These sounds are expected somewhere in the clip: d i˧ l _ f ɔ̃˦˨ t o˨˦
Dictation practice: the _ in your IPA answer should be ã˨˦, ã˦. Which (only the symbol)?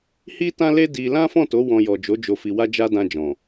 ã˦